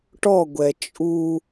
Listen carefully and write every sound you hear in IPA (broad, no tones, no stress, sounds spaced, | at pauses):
ʈ ɔ ɡʷ ɛ t͡ʃʼ u